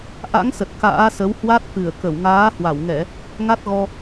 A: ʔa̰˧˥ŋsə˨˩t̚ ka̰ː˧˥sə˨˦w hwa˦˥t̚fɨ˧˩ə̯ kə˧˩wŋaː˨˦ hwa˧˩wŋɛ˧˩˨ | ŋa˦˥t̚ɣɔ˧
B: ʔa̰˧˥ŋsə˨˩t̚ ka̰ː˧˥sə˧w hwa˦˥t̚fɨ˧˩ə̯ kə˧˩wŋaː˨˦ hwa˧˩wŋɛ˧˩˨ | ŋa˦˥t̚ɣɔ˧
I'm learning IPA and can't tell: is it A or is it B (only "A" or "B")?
A